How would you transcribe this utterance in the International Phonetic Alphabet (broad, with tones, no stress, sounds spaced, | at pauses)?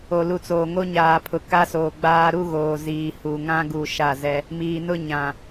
o˨ l u˨ t͡s oː˨ ŋ o˦ ɲ aː˨ pʰ ʊ˨ k a˦ s oː˨ ɡ͡b aː˦ ɾ u˦ ɣ oː˨ z iː˨ h u˨ ŋ ã˦ ɡ u˨ ʃ a˦˨ z ɛ˦ | m iː˨ n ʊ˦ ɲ ã˨